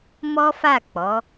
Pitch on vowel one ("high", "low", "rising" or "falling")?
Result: high